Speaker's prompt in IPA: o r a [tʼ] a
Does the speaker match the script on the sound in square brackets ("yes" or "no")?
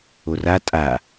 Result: yes